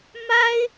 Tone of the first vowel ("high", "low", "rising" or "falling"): high